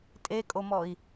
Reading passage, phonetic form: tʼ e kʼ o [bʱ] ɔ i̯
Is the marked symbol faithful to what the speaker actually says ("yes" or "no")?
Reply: no